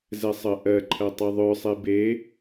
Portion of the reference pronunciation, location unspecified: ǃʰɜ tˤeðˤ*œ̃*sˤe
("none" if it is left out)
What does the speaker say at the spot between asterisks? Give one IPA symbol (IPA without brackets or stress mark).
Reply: œ